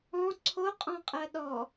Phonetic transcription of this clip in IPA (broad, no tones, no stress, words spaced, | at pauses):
ɔ̃ ǀʰoqʼɔ̃qʼɜ ɗɔ